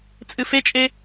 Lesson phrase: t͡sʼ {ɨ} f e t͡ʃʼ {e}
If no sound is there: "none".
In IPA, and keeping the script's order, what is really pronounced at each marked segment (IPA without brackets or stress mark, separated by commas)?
ɨ, e